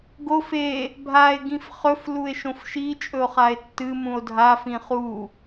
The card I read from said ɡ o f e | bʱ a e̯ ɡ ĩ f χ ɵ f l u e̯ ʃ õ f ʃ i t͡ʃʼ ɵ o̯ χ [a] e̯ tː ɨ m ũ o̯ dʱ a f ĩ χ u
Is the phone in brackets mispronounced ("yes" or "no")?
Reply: no